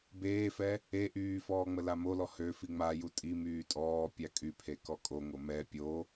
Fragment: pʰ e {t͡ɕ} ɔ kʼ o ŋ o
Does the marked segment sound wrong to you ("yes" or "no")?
yes